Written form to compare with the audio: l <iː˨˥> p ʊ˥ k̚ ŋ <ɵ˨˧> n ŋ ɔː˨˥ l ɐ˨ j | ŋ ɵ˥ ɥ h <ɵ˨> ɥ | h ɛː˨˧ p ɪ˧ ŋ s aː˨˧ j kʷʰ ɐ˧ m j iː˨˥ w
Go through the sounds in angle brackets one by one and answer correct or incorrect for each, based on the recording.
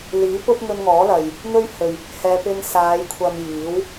correct, incorrect: ɵ˧, correct

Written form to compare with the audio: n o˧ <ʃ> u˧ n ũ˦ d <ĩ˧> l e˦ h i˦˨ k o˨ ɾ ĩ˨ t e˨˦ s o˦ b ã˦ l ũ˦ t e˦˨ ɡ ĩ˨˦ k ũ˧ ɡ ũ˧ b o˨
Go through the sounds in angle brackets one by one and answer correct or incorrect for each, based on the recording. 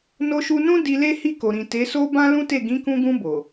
correct, incorrect: i˧

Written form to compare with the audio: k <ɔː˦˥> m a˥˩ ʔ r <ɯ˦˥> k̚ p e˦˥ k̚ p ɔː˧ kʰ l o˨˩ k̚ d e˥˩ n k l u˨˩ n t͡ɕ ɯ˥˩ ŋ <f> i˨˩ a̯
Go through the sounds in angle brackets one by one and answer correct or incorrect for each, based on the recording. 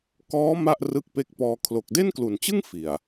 correct, correct, correct

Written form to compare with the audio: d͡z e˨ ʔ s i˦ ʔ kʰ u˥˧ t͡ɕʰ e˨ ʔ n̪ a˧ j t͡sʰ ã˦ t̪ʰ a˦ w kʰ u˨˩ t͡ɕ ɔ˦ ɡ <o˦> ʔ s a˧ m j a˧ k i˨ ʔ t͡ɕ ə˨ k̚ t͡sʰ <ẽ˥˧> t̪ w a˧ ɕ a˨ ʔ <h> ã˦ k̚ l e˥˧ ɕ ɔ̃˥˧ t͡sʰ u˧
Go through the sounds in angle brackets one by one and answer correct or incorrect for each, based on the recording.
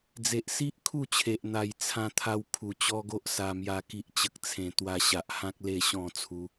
correct, incorrect: ẽ˨˩, correct

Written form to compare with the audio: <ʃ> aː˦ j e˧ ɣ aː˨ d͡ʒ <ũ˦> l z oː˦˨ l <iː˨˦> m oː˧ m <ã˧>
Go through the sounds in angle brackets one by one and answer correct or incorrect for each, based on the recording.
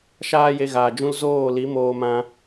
correct, correct, incorrect: i˨˦, correct

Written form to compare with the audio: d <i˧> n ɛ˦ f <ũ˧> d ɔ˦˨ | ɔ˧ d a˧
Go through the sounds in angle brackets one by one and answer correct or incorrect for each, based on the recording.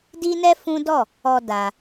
incorrect: i˦, incorrect: ũ˦

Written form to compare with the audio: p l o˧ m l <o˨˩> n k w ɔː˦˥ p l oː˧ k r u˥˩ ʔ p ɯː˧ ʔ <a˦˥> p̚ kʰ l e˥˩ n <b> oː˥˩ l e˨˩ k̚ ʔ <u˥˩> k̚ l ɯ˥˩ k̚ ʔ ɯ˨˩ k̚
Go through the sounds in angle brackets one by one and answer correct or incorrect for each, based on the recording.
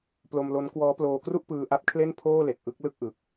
incorrect: o˦˥, correct, incorrect: pʰ, incorrect: ɯ˥˩

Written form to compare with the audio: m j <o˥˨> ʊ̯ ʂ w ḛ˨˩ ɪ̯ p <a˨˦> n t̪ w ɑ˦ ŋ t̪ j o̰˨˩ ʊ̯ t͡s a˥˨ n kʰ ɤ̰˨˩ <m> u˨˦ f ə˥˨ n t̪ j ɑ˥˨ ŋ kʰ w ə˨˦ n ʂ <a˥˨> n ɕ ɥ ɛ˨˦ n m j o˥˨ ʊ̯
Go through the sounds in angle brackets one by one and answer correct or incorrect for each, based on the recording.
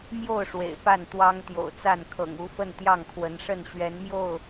correct, incorrect: a˥˨, incorrect: ŋ, incorrect: ə˥˨

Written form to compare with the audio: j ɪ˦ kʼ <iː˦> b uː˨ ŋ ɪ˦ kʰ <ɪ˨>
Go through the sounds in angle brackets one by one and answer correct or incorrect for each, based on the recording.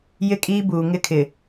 correct, correct

